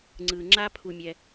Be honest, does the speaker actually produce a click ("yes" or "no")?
yes